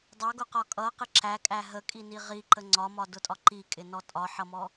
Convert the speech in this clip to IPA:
dˤ ɑ ɡ ʊ q ɒ kʼ ʌ q ɪ ǁ æ kʼ æ ɦ ə kʼ i n i ʁ i ǃ ə ŋ͡ǀ ɒ m ɒ d ʊ tʼ ɒ ǃ i kʼ ɪ n ɔ tʼ ɒ ħ ʌ m ɔ

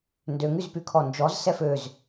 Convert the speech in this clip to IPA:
n d ø ŋ y z p y kʰ ɔ n d͡ʒ ɔ z s ɛ f ø z

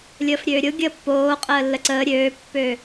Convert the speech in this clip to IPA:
lʲ əː f ɾʲ øː ɾʲ ʊ ɡʲ əː pː oː qʼ əː lː ə ǀ əː ɾʲ øː pː ø

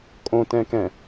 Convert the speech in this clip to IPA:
kʼ õ t ɛ̃ k ɛ̃

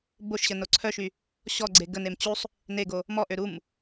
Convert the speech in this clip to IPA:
b o ʃ ɕ ə n o ǀʰ œ ʃ y | ɕ ɔ ɡ͡ǀ e ɡ ə n e m t͡ɕ u sˤ | n e ɡ o | m ɔ ʔ ø ɾ u m

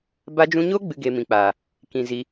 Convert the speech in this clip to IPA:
b a˧ d͡ʒ ũ˧ ɲ o˦ ɡ͡b ɨ˦ ɡ e˧ m ĩ˨ k͡p aː˨ | k ĩ˨ z i˧

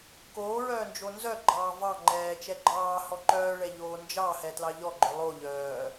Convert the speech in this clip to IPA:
k oː ɹ œː n d͡ʒ o n z œ ɡ͡ǃ ɑː v ɑ ŋ͡ǃ ɛː t͡ʃ ɛ ɡ͡ǃ ɑː h ɔ ǃ œː ɭ ɛ ʎ oː n d͡ʒ ɑ h ɛ t l ɑ ʎ ɔ ɡ͡ǃ œ lˠ o ʎ œː

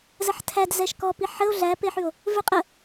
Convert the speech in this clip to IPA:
z ə ħ tʰ æ d z ɛ ʃ k ɔ p i ħ ə o̯ ɮ æ p e ħ ʉ o̯ | v ʉ qʼ ə

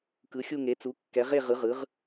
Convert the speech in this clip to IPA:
k ɯ˩˥ xʲ u˥˨ ŋ e˩˥ t͡s u˩˥ kː ɛ˩˥ ʁ e˥˨ ʁ ɯ˩˥ ʁ ɯ˩˥ ʁ

